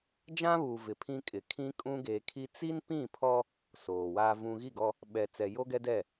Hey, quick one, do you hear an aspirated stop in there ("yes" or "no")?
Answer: yes